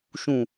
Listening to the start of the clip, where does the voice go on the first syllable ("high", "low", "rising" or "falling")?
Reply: low